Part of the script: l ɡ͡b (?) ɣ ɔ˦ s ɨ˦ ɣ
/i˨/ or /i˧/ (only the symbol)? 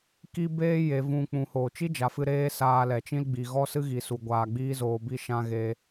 i˨